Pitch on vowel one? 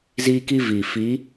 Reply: high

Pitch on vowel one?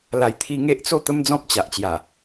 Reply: low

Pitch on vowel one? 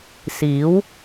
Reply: rising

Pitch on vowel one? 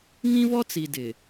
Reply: high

